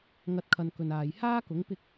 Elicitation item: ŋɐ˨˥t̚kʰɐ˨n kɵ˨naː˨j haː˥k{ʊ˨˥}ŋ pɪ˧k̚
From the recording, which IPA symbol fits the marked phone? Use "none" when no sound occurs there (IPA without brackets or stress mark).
ʊ˨˥